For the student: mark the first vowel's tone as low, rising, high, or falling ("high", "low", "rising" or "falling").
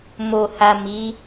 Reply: low